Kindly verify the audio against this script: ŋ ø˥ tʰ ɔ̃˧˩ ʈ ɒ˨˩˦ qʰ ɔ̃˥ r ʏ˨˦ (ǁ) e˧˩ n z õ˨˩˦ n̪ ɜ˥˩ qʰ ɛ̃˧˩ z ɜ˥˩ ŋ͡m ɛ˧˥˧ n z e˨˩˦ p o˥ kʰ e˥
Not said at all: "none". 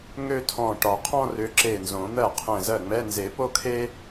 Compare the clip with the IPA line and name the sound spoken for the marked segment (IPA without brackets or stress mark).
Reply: ǁ